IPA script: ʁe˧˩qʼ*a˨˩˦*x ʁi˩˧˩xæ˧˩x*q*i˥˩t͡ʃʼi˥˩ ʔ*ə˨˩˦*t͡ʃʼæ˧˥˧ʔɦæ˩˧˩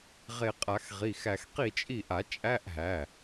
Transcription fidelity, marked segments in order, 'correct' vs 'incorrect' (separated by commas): correct, correct, incorrect